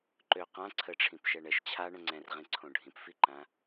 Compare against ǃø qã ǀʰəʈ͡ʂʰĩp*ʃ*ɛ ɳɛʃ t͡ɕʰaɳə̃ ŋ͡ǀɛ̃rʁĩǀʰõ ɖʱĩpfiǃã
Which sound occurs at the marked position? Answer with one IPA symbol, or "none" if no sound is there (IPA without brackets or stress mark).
ʃ